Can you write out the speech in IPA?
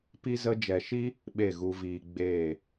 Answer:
p i˦ z ə˧ d͡ʒ ɛ˨ ʃ i˦ | ɓ e˦˨ ɣ u˧ v iː˧ ɡ͡b eː˦˨

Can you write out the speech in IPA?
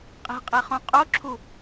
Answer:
qʼ i̤ qʼ e χ õ qʼ o ǁʰ u

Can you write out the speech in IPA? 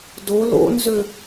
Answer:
d o l o̰ n z ø

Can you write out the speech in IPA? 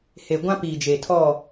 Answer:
h e˨ ɡʷ ã˦ p iː˨ d͡ʒ e˨ tʰ ɔ˦˨

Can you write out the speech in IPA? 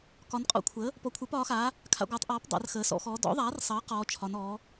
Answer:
k ɒ˩˧ n qʼ ɔ̰˩˥ kʷʰ əː˩˥ | p ɔ˩˥ kʷʰ ə˞˩˥ p ɒː˩˥ x aː˩˥ | kʰ a̰˩˧ ɡʷ ə˞˩˧ tˤ ʔ ɔː˩˥ p dˤ a̰˩˧ r x əː˩˧ s ɔ̰˩˧ x ɔː˩˧ d ɔ̰˩˥ ðˤ aː˩˥ r sˤ əː˩˥ q ɔː˩˧ t͡ʃʰ ɒ˩˧ n ɔː˩˥

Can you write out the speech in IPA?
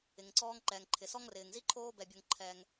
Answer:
ɪ˩ ŋ ǀ ɔː˥ ŋ ǃ ɛː˩ ŋ ǃʰ ɪ˩ s ɔ˥ ŋ r ɪː˩ ŋ z i˥ ǃʰ oː˦ b ɛ˨ bʲ o˨ ŋ ǃʰ ɛ˨ ŋ

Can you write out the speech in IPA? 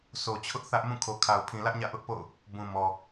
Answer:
sʰ o˨ t͡ɕʰ ʊ˦ ʔ θ ä˦ ʔ m ũ˦˨ kʰ o˨ kʰ a˨ ʊ̯ pʰ ĩ˨ l ä˦ ʔ ɲ ä̰˦˨ ʔ ʊ˦ ʔ p o̰˦˨ ʊ̯ | b ũ˨ m ɔ˨

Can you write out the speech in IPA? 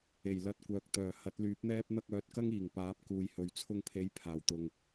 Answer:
e˨˩ j l ɐ˧ t̚ kʷ œː˨ k̚ t̪ œː˨˩ h ɐ˨˥ t̚ l yː˨˥ p̚ n̪ ɛː˥ p̚ n̪ ɐ˧ k̚ œː˨˥ t̚ k ɐ˥ ŋ iː˨˩ ŋ p aː˨˥ p̚ k uː˨ j h ɵ˨ ɥ t͡sʰ ʊ˧ ŋ pʰ e˨˥ j pʰ aː˨˩ w t̪ ʊ˨ ŋ

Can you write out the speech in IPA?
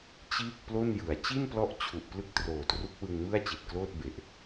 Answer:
t͡ɕ iː˥˩ k̚ p l o˥˩ n j ɯ˩˦ a̯ t͡ɕ i˥˩ n p l ɔ˦˥ ʔ t͡ɕʰ u˨˩ ʔ p l ɯ˥˩ k̚ t r oː˨˩ t r u˦˥ k̚ w ɯ˧ ŋ m ɯ˥˩ a̯ t͡ɕ i˨˩ t̚ k l oː˥˩ t̚ b e˨˩ ʔ

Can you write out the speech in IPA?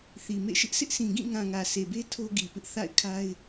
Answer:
θ i˨ m ḛ˦˨ ʃ ɪ˦ ʔ s ɪ˦ ʔ s ĩ˨ ɡ ĩ˦˨ ŋ ã˨ ŋ ä˨ s e˨ b e˦ tʰ o˦ ɡ i˨ p ɪ˦ ʔ θ a̰˦˨ ɪ̯ kʰ a˦ ɪ̯

